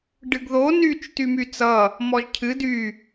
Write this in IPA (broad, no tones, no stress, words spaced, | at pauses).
ɖɨɡðo nyt͡ʃ tymyt͡sʌ | mɔʒcʰɨ dy